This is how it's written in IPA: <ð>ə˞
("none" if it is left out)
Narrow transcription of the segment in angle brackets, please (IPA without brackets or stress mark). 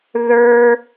ð